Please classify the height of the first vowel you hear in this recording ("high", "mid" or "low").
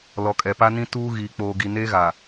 mid